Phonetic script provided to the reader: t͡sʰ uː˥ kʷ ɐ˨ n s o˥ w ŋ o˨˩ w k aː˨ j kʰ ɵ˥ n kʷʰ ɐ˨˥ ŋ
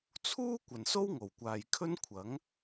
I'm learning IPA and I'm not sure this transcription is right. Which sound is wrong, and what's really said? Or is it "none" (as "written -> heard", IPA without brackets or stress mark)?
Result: k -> kʷ